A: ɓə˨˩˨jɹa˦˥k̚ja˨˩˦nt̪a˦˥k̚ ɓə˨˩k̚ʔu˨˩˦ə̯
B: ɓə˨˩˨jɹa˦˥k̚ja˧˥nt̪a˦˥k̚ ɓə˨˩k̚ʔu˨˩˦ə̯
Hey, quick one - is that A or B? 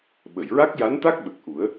B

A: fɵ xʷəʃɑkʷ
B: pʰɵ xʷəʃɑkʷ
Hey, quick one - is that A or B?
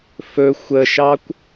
A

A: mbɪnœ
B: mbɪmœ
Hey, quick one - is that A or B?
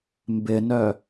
A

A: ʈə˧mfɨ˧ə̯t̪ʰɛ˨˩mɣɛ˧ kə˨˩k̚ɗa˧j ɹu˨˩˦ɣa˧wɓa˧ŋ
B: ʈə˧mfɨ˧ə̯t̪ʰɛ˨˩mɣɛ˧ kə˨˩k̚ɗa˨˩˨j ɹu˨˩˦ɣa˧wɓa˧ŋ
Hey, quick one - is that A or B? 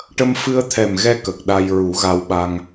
A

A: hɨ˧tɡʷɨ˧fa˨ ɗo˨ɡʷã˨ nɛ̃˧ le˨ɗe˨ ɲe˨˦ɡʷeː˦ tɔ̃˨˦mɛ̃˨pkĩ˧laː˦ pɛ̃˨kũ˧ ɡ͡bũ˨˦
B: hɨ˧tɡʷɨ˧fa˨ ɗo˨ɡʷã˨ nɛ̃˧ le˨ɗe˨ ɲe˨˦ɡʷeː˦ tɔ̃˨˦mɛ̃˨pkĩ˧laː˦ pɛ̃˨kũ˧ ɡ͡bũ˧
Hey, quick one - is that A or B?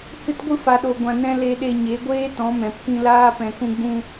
B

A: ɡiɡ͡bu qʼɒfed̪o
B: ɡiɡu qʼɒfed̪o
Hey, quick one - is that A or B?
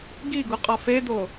B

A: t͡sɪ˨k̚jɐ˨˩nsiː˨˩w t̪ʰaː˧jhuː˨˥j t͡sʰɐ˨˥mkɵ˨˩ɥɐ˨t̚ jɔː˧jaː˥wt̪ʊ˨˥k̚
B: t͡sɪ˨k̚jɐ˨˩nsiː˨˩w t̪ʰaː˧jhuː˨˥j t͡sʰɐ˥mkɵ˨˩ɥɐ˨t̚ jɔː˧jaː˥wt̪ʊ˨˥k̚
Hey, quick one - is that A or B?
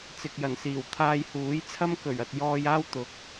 B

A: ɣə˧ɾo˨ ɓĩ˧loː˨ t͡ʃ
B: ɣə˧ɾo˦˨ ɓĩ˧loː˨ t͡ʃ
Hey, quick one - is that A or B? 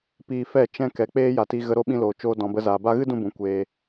B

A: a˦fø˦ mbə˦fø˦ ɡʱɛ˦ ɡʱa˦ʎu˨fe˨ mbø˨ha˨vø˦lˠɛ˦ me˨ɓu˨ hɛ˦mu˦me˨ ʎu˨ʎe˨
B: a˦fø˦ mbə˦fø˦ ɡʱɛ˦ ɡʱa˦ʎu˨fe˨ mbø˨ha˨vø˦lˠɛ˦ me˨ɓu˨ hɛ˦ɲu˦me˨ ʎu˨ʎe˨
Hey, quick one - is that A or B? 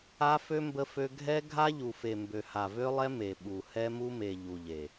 A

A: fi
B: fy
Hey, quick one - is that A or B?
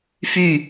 B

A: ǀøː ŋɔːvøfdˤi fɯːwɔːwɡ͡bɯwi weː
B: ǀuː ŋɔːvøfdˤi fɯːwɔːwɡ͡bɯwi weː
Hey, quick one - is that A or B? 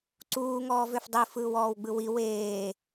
B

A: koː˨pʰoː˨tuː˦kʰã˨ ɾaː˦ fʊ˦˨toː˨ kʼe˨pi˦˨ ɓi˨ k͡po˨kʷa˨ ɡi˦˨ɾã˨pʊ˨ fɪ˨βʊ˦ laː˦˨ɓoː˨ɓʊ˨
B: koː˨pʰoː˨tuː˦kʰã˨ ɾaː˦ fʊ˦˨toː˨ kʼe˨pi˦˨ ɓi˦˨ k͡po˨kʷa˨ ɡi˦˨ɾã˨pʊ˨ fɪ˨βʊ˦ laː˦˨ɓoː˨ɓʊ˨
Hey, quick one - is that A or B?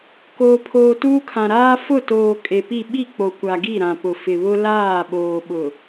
B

